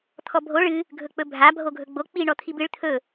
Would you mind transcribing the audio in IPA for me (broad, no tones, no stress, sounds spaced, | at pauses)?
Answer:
t̪ʰ ɔ bʱ o ɭ ɨ | ɡʱ ɵ k͡p ɵ bʱ a bʱ o ɡʱ ɵ ɡ͡b o k͡p i ɳ ɔ t̪ʰ i b ɨ ɭ t̪ʰ ɵ